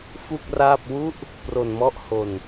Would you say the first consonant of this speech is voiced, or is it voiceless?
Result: voiceless